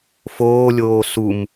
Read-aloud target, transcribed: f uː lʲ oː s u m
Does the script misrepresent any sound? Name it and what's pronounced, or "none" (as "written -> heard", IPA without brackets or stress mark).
uː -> oː